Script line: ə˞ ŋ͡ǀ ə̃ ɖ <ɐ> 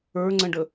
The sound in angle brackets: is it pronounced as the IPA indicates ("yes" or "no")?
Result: no